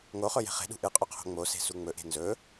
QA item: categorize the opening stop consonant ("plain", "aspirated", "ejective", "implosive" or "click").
implosive